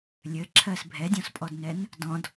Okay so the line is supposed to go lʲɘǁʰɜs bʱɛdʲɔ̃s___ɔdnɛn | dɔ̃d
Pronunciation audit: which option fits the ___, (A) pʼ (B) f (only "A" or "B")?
A